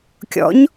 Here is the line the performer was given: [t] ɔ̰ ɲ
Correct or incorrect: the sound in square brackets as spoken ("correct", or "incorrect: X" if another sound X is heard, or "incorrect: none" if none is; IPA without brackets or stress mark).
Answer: incorrect: kʲ